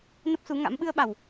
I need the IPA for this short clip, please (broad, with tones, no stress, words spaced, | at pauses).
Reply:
nə˦˥p̚su˨˦ŋa̰˧˥m ɓɨ˧ə̯ɓa˨˩w